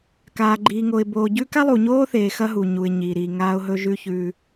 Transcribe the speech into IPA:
kaː˨ɡ͡ǃiː˨ŋo˨ɪ̯boː˨ ɟʉ˦ ka˦lˠu˨ɲoː˦θeː˨ xɐ˦ɦu˨ɲu˨ɪ̯ ɲi˨ ɾi˨ŋaː˦ʊ̯ ɦɵ˦ʒʉ˦çʉː˦

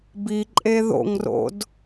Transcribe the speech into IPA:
biǃʼe ðo̰ŋro̰d

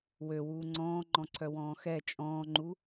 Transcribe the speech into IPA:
wøwuː ŋ͡ǀɔ̃ːŋ͡ǃɔ̃ǀʰœwɔ̃ː xɛ t͡ʃʼɔ̃ːŋ͡ǃu

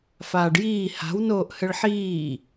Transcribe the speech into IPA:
faːɖjiː ha̤w noːʔhɘɭħiː

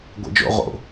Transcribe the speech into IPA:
ɡʷḛd͡ʒo̰ ʁo̰

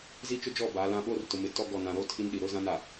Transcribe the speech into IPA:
zi˦t͡ʃʊ˦d͡ʒɔ˦˨ ba˨˦lã˦ ɓoː˦rtʊ˨mɪ˨ tɔ˦ ɡɔ˦˨ nã˨ɾo˦ tʰi˦nɗi˨ ɾʊ˦zã˦na˨

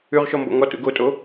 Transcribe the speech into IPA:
ʉʁʃɔmbɔ̰ ŋɔtṵ ɡotʼo

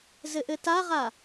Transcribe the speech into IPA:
zɘʔɘtaʁa

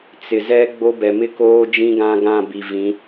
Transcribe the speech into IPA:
t͡sɪ˨zɛ˦ ɡ͡bo˦bɛ˨ mɪ˦koː˦ d͡ʒĩ˦ɡã˦ɡã˦˨ bi˨vĩ˨˦

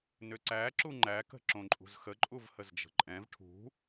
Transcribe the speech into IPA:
nʏǀæ ǁuŋ͡ǃækə̤ ǁõǃʼṳzxə ǃʼuvhəzd͡ʒə̤ǃʼɛ̃v ʈʰṳ

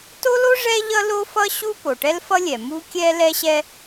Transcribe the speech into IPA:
to˥lo˥ ʐɛ˥ʎʌ˥ lo˥fʌ˥ ɕu˥ po˩ʈɛ˥lfʌ˥lʲɛ˩ mu˥kʲɛ˥ lɛ˥ɕɛ˥

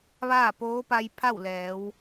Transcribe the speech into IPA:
ʋaː˥˨poː˧˥pa˧j pʰa˥˨wlɛː˩˧w

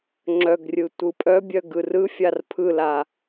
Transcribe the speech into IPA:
ŋ͡ǁœɡrʲɯ tʷɯpʼœbʲœ ɡɯrɯfʲar pʰɯla

